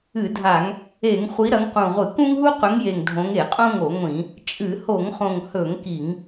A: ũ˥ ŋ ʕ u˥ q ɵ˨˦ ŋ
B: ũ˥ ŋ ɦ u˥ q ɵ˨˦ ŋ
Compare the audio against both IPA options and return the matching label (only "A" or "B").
B